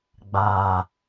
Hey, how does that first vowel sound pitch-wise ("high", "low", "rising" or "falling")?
low